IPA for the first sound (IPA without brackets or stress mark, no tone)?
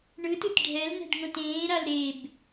ɳ